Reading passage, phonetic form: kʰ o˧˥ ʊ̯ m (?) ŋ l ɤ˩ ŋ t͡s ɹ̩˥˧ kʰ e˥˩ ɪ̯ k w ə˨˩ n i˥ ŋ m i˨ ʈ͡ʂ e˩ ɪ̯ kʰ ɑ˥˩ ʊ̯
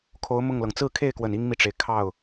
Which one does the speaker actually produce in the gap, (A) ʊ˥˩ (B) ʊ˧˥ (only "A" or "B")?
A